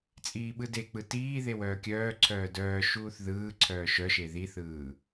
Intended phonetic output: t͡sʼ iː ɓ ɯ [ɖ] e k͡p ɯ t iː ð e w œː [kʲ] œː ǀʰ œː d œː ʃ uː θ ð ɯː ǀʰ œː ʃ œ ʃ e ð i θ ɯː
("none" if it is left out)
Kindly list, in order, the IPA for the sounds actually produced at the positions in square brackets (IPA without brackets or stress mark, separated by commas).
d, kʲ